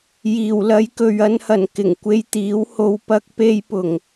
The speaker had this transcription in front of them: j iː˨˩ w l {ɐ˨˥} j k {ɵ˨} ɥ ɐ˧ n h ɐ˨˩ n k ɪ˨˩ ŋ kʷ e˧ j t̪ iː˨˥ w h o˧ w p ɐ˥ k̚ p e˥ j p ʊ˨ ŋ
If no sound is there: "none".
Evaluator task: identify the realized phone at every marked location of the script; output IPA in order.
ɐ˨˧, ɵ˨

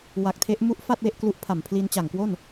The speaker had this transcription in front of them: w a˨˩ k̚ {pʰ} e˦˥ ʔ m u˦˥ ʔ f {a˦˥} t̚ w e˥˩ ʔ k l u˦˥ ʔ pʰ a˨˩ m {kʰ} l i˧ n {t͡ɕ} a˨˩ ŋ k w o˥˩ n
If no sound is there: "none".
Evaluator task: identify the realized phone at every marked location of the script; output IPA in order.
tʰ, a˥˩, pʰ, t͡ɕ

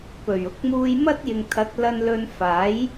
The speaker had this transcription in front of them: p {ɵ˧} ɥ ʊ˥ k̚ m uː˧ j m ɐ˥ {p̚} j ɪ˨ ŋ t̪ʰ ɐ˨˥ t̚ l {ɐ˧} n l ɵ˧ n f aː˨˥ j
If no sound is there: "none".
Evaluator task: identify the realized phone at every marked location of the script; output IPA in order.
ɵ˨˩, t̚, ɐ˧

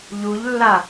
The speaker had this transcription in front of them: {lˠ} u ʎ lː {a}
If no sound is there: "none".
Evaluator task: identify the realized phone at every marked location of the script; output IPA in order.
ʎ, a

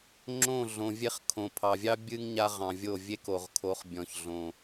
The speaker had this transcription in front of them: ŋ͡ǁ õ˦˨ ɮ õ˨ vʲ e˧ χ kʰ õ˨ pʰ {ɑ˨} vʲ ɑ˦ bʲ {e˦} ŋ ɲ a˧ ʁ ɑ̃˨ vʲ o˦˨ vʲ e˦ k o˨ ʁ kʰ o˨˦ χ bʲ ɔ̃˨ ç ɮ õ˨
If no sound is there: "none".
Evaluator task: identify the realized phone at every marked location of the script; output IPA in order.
ɑ˨, ɨ˦

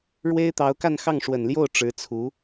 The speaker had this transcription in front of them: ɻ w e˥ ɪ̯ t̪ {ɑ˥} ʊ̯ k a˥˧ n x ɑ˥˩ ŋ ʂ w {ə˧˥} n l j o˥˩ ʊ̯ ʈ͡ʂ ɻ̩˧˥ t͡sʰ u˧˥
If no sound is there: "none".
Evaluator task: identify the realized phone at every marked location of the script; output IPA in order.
ɑ˧˥, ə˨˩

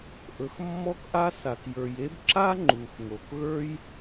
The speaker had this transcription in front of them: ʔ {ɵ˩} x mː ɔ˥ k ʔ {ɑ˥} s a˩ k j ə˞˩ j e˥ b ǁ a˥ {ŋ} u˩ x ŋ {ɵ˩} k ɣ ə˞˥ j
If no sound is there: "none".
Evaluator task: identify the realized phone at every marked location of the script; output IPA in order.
ɵ˩, a˥, ŋ͡ǃ, o˩

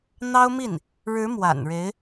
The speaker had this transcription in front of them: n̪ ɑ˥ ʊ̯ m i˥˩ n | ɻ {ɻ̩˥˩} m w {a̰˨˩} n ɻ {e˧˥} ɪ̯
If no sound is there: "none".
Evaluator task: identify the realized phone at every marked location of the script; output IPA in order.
ɻ̩˧˥, a̰˨˩, e˧˥

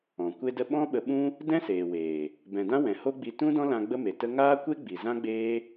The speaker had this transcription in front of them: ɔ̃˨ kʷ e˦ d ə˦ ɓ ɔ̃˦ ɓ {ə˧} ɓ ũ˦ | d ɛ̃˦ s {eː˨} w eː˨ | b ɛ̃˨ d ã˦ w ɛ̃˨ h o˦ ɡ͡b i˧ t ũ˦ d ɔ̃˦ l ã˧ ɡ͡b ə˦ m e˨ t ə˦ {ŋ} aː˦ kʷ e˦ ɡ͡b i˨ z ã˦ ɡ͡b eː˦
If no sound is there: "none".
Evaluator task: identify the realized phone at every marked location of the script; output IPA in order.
ə˧, eː˨, ŋ

